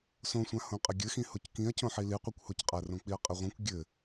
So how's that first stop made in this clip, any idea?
ejective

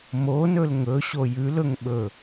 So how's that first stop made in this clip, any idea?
implosive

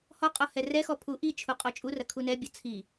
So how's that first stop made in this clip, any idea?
ejective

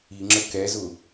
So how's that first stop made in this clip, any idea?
click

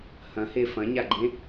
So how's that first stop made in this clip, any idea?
click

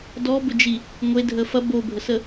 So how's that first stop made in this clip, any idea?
plain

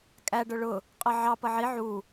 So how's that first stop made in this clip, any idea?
ejective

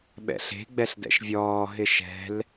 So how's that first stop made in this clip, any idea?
implosive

